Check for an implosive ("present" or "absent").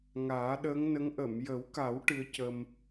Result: present